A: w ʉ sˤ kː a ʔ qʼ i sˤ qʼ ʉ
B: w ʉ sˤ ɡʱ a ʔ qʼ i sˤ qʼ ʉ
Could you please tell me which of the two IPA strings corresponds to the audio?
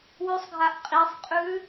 B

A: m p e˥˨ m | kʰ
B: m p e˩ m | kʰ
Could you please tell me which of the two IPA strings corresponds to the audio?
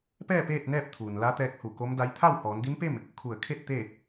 A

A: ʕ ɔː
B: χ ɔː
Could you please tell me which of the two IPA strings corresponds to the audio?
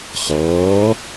B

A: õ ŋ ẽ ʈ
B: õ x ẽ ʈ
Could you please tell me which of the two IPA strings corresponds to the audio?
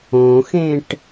B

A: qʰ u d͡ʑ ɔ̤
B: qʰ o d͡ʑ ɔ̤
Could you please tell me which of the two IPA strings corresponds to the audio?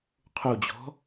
A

